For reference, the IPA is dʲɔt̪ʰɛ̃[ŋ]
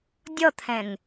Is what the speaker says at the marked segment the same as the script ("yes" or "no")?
yes